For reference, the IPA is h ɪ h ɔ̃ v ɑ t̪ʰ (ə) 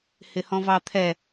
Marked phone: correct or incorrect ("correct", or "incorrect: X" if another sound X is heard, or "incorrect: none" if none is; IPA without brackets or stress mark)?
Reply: incorrect: ɛ